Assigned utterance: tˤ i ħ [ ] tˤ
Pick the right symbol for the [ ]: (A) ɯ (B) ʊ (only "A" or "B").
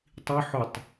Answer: B